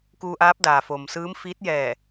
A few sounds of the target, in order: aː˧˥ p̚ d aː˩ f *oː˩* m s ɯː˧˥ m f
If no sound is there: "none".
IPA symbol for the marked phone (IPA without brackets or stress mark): oː˩